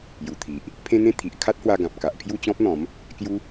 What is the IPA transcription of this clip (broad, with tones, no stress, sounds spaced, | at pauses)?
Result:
j u˨˩ t̪ʰ i˨ ʔ | pʰ ẽ˦ n̪ ẽ˦ t̪ʰ i˨ ʔ kʰ a˦ t̚ h w a˧ ɡ ã˨ p̚ k a˨ ʔ pʰ j u˥˧ t͡ɕ ɔ̃˦ p̚ n̪ ɔ̃˨˦ m | k j u˦